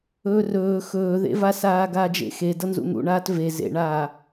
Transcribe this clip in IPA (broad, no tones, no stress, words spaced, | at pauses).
ɵːrɵː xɵːðḛvasaː ɡaːd͡ʒḛxe dʌnzṵn̪ṵɳaːt ve zḛɳaː